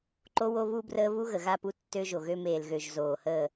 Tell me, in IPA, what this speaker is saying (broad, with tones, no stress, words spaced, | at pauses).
ǃo˦wo˦ βu˦brəː˦ βu˦ɣə˨ɣa˦˨pu˦ tːø˦ʒo˨ɣø˦ meː˨lɣø˨ʒ zoː˨həː˦˨